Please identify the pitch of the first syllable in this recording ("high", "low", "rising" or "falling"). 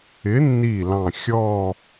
rising